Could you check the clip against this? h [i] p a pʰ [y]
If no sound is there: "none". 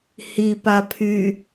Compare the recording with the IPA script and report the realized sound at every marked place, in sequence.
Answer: i, y

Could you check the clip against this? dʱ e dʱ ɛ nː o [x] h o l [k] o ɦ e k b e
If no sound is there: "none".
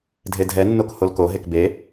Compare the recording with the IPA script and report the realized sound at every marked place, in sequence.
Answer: k, k

